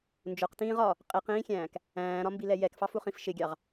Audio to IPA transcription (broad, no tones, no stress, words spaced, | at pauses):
nd͡ʒʊqtĩːʁ ɒ | qʼiqĩːxʲæ̃ːk | æ̃ːɾɒmbilɛ jɛkfɑfuχĩf ʃɪɡʲɑʁ